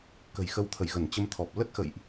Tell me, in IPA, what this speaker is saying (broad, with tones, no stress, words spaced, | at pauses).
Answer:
kə̤˨˩jxə˧wt̪ʰə˧˩jɣə˧˩n t͡ɕə˧mt̪ʰɔ˨˩p̚ lə˦˥t̚xə̰˧˨jʔ